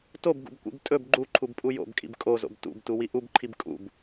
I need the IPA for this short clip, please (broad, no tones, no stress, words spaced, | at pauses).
tobɡṵbkʷḭb tʼɵb ɡ͡ǃuǃʰubpʼu jo̰bkʼḭb kʼozo̰b tṵbtuwi ʔubǃʰib kʼṵb